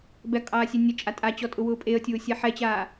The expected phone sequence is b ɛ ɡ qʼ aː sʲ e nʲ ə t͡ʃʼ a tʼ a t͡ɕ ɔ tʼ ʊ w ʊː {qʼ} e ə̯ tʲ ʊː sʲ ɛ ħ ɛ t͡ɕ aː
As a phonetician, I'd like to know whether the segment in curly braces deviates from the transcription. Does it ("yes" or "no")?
yes